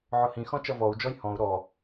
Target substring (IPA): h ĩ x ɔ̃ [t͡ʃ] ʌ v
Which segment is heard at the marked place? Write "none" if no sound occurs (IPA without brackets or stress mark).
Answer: t͡ʃ